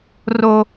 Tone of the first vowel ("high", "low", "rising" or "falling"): low